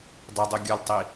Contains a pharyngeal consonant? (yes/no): no